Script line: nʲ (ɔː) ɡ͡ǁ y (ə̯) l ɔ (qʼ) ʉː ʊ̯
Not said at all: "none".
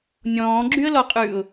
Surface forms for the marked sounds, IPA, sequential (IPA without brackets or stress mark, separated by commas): ɔ̃ː, ə̯, qʼ